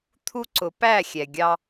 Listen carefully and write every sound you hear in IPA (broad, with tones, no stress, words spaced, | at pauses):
t̪ʰu˦ ǀʊ˨˦ pæ˦˨xʲɛ˨ɡʲɑ˦